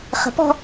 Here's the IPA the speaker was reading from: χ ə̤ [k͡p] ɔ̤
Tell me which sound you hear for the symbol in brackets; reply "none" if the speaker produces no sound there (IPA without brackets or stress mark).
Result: p